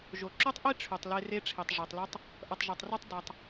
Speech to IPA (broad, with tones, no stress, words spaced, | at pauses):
ʒo˩ ǁo˥tˤʔi˥ ʈ͡ʂʰy˩tˤle˧ re˧ʈ͡ʂʰi˩tˤ ʐe˩tˤly˧tˤ | ʔʌ˩tˤʒa˩tˤro˧tˤ dʌ˩tˤ